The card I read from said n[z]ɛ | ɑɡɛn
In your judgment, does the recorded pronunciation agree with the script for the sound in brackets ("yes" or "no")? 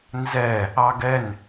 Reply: yes